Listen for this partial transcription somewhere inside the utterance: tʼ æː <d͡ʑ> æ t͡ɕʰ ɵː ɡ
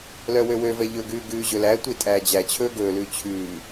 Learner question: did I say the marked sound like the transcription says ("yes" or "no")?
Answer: yes